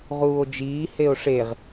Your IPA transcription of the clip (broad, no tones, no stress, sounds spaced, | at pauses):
ʁ uː o̯ d͡ʒ iː h e o̯ ʂ e ʁ